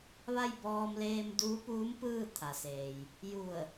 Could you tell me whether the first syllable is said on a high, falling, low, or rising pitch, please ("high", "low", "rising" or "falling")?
falling